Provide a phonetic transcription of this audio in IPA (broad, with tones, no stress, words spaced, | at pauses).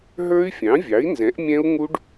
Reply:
ɦə˞˦˥y̯fʲɑ̃˩˥vʲɑ˩˥i̯nzɛ̃˩˥ʔ mʲɛ̃˦˥u̯ŋu˦˥ɖ